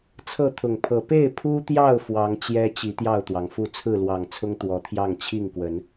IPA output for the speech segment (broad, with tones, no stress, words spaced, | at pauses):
t͡sʰɤ˥˨t̪ʰʊ˨˩ŋpʰɤ˨˦ pe˥˨ɪ̯ pʰu˦t̪jɑ˥˨ʊ̯ fwɑ˨˦ŋt͡ɕjɛ˦ t͡ɕi˨˦ t̪jɑ˥˨ʊ̯t̪wɑ˩ŋfu˥˨ t͡sʰɹ̩˥˨lwɑ˨˩ŋt͡sʰʊ˦ŋ t̪wɔ˨˦t̪ʰjɑ˥˨ŋ t͡ɕʰi˥˨ŋkwə˨˦n